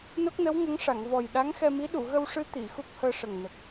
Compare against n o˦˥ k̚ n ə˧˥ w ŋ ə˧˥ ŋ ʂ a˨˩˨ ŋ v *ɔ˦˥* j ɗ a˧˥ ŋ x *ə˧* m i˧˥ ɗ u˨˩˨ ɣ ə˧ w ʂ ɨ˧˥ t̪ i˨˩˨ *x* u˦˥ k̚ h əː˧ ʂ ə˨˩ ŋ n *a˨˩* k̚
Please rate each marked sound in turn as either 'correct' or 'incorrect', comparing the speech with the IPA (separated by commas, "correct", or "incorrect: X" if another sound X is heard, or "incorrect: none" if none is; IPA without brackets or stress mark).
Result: incorrect: ɔ˨˩, incorrect: ɛ˧, correct, incorrect: ə˨˩